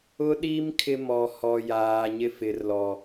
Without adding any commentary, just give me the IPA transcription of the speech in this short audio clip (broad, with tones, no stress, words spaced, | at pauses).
ʊ˦ɗi˦m kʰɪ˦ mɔ˨hɔ˨ jaː˨ɲɪ˦fɪ˨rlɔ˨